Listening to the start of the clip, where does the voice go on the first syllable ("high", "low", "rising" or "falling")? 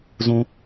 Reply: high